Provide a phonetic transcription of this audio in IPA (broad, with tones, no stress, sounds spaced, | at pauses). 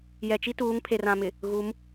j ɛ˨ t͡ʃ i˦ t uː˨˦ ŋ pʰ e˨ r ã˨ m ɪ˨ | ɣ u˨˦ m